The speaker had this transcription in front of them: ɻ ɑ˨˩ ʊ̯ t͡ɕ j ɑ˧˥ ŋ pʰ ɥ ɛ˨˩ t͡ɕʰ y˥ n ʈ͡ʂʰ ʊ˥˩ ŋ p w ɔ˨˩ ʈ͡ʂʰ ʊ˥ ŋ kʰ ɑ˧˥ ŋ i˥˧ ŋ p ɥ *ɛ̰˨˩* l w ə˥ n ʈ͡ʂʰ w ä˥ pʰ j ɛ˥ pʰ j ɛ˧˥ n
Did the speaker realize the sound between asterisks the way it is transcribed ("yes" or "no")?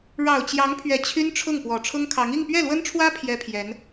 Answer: no